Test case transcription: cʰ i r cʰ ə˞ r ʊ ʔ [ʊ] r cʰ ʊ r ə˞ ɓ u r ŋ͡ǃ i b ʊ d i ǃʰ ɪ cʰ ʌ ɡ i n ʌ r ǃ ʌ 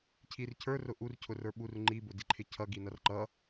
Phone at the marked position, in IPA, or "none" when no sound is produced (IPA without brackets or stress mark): u